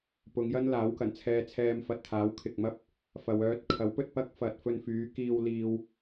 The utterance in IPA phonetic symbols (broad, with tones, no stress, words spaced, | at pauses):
pʊ˨˧ŋjɐ˥n laː˨˥wkɐ˨˩nt͡sʰɛː˧t͡sʰɛː˧m fɐ˧t̚t̪ʰaː˨˥wkʰɪ˨k̚mɐ˥p̚ | fɐ˨wœː˧t̚kʰɐ˨˥wpɵ˧t̚ pɐ˥k̚fɐ˨t̚ fɵ˧nfyː˨˧kiː˧w liː˧w